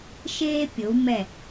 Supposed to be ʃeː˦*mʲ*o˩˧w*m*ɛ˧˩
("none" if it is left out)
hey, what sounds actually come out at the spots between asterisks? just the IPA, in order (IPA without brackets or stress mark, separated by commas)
pʲ, m